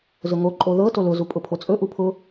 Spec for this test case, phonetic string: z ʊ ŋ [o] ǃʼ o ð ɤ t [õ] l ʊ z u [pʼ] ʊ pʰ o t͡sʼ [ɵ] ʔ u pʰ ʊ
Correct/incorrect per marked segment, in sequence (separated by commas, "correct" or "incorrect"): correct, incorrect, correct, correct